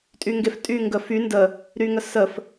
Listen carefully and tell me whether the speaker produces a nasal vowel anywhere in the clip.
no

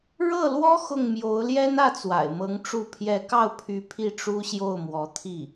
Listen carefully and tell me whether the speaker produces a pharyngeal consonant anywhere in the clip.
no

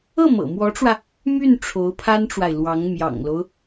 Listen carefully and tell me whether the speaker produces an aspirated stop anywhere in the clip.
yes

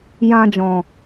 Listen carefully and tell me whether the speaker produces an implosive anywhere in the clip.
no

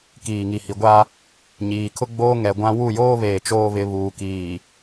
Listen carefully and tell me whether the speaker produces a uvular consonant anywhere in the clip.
no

